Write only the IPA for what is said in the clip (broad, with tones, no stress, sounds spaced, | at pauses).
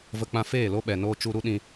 v ə˧ k͡p ã˧ f eː˦˨ l o˦ ɓ ɛ˨ n oː˧ t͡ʃ u˧ ɾ u˦ ɗ ĩ˧